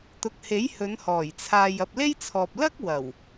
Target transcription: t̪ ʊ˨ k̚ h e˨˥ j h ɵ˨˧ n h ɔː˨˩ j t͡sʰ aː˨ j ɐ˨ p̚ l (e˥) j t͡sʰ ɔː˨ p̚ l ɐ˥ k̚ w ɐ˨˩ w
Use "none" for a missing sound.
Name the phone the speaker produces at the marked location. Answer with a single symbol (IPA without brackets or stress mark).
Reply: e˥